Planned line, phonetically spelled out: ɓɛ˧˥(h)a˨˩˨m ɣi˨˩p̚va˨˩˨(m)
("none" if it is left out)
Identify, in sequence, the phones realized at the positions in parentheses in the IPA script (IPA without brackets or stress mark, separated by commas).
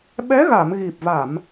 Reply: ɣ, m